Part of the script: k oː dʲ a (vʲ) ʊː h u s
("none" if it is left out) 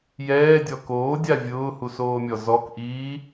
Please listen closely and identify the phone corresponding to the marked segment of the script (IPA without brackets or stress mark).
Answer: vʲ